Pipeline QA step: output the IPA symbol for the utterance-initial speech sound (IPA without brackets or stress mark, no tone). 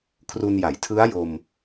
kʰ